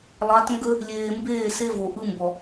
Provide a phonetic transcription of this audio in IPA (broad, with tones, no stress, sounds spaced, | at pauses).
lˠ ɑ˨˦ t ŋ ɡ ə˦ | lʲ eː˨ m b eː˦˨ s e˦ v o˨ ʔ ɯ˦ m b ɔ˨